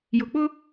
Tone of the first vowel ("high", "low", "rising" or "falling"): low